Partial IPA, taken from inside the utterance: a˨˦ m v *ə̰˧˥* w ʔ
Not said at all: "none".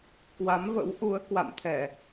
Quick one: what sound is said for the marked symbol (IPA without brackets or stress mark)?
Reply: ə̰˧˥